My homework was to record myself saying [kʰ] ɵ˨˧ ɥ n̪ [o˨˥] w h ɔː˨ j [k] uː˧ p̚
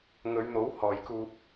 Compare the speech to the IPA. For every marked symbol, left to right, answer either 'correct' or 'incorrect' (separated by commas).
incorrect, correct, correct